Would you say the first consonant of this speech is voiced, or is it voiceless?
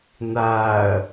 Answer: voiced